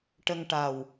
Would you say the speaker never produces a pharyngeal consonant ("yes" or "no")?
yes